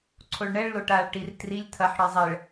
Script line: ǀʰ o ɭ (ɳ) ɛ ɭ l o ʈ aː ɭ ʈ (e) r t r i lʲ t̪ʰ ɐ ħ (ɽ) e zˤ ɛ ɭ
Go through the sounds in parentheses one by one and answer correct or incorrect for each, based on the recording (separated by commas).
correct, incorrect, correct